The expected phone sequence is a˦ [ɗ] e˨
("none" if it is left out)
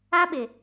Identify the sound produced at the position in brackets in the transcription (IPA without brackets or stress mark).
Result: ɓ